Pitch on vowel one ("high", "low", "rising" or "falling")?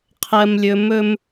low